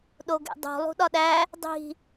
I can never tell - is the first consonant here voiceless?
no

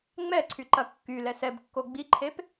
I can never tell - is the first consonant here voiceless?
no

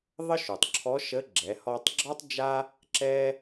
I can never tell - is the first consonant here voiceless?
no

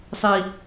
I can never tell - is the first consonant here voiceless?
yes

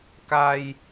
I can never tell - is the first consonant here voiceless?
yes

